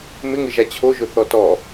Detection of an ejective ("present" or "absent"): absent